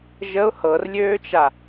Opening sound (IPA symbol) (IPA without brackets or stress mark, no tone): ʒ